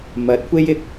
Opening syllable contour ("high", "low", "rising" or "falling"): rising